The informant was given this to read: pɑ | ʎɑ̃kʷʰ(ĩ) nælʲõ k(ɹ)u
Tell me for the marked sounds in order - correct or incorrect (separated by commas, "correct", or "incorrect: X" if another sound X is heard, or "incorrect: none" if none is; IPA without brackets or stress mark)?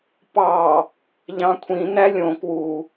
correct, incorrect: w